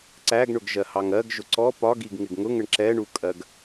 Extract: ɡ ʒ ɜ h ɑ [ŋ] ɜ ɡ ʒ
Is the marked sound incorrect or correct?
correct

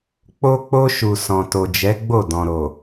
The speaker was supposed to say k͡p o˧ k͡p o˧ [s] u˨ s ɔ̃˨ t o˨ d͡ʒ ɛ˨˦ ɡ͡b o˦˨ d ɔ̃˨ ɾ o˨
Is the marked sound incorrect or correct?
incorrect: ʃ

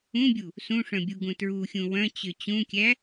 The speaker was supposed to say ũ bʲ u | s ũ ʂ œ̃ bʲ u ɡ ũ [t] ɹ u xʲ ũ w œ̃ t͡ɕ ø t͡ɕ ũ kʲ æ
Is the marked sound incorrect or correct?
correct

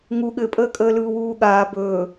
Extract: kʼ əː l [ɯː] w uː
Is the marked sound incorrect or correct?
correct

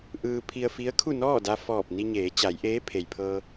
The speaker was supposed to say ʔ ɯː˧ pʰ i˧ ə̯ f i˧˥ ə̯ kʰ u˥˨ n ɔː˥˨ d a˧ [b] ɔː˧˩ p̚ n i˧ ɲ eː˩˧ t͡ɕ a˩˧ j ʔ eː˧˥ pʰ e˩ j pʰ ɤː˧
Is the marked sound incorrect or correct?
incorrect: f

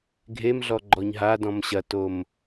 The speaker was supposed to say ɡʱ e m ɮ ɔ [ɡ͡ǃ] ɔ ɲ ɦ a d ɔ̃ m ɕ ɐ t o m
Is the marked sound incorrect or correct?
correct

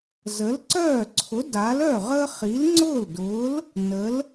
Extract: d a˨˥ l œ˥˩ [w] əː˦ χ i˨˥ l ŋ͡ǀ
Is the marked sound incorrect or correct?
incorrect: ʁ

